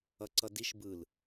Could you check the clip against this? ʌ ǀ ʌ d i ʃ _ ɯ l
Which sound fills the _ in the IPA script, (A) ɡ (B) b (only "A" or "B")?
B